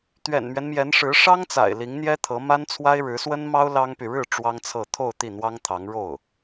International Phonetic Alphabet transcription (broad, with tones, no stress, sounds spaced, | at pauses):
t̪ ɥ ɛ̰˨˩ n m ɥ ɛ˦ n m j ɛ˧˥ n ʂ ɻ̩˧˥ ʂ ɑ˥ ŋ t͡s a̰˨˩ ɪ̯ l i˧˥ ŋ n̪ j ɛ˥ t̪ʰ ɤ˧˥ m a˥ n t͡sʰ w a˥ ɪ̯ ɻ ɻ̩˧˥ s w ə˥ n m ɑ˥ ʊ̯ l ɑ˥ ŋ p y˨ ɻ ɻ̩˥˩ ʈ͡ʂ w ɑ˥ ŋ t͡sʰ ɤ˥˧ t̪ʰ o˥˧ ʊ̯ t̪ i˥˩ n̪ w ɑ˥ ŋ t̪ʰ ɑ˧˥ ŋ ɻ o˥˩ ʊ̯